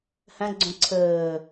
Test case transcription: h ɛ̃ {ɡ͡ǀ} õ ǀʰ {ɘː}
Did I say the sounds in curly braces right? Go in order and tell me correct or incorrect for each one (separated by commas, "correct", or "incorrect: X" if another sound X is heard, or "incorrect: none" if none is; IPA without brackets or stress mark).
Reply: correct, correct